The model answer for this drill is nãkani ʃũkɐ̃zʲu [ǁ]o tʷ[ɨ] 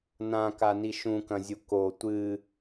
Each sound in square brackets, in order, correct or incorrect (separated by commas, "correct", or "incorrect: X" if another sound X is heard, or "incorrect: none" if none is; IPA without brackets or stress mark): incorrect: k, correct